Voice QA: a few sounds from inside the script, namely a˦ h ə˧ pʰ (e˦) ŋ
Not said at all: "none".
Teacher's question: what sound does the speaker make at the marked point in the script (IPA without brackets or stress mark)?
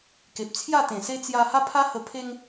e˦